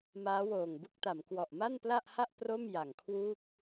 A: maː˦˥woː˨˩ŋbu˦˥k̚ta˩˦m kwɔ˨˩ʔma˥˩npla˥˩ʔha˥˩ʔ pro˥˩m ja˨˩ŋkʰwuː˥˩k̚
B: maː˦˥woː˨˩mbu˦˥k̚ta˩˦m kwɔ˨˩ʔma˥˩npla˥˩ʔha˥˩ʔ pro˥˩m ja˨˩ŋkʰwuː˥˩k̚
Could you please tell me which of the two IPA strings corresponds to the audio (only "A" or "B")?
A